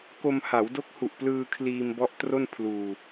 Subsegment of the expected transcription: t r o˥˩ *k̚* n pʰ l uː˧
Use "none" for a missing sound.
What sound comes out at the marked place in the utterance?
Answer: none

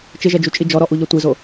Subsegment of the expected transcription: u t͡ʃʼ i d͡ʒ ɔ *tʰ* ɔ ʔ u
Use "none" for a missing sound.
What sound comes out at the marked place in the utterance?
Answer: ɾ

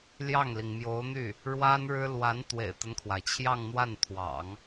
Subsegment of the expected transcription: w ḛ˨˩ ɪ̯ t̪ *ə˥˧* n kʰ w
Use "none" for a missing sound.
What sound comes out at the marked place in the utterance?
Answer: ə˦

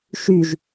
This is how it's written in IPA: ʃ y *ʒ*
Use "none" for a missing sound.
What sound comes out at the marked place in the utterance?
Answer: ʒ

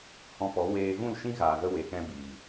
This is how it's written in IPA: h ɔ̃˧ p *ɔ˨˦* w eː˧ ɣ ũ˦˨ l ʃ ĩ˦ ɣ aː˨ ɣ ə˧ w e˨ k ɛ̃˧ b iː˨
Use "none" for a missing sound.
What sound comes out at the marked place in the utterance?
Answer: ɔ˨˦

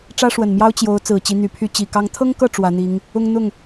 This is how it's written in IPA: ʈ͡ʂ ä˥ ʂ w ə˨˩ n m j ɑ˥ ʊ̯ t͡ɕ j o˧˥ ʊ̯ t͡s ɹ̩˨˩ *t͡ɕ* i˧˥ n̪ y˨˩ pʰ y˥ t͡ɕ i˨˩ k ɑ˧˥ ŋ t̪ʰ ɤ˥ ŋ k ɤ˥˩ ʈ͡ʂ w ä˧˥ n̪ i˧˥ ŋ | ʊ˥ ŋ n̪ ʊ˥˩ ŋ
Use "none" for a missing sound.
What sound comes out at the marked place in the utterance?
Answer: t͡ɕ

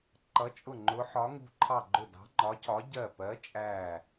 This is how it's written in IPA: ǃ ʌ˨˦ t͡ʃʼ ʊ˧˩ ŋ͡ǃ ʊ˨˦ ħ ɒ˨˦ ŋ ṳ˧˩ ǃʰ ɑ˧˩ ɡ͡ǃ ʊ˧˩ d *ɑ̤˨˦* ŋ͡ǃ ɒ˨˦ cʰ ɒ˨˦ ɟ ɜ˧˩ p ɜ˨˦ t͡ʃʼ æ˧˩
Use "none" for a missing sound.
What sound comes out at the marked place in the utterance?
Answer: ɑ̤˨˦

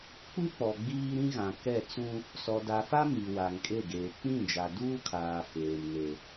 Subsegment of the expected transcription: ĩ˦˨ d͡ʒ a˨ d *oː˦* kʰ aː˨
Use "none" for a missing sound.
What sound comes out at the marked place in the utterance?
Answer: uː˦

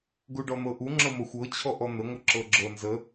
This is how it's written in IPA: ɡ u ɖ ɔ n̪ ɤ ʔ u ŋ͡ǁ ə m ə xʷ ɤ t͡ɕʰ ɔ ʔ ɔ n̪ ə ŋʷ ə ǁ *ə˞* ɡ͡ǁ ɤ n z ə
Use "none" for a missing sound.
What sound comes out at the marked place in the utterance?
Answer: ɤ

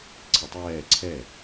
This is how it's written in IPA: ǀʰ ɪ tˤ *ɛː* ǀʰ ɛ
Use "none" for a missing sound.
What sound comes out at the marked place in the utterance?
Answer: ɛː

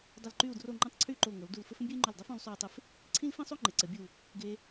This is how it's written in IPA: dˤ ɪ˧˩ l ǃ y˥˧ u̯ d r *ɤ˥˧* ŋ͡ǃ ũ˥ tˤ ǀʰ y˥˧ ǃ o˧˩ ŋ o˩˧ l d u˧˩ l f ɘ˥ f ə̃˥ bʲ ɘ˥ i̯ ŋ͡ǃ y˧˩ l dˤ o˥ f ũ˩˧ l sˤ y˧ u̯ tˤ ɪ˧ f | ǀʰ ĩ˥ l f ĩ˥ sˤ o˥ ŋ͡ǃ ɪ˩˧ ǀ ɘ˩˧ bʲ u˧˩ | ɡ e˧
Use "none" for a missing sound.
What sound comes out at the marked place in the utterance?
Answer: o˥˧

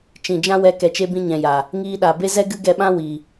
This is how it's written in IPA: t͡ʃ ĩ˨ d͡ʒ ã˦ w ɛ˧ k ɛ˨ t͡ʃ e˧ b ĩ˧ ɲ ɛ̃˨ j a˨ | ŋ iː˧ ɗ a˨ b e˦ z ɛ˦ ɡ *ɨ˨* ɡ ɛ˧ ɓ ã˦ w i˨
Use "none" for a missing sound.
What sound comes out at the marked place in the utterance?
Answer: ɨ˦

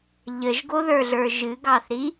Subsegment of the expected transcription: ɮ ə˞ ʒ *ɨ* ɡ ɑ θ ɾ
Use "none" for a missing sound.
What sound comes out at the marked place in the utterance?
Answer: ɨ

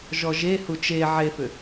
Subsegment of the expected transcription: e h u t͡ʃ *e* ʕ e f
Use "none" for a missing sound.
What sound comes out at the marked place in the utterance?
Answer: e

